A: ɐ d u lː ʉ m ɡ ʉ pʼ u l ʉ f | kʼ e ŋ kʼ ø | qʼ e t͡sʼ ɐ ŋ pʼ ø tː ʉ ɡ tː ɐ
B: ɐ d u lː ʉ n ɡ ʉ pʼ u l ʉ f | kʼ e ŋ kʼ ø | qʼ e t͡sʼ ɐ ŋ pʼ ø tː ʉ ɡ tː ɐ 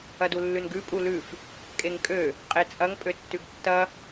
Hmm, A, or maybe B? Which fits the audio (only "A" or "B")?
B